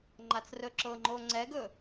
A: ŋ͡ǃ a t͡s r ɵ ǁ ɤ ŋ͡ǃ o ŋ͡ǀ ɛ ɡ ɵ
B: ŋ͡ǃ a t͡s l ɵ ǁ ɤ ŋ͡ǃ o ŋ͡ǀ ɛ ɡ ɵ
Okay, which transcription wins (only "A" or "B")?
A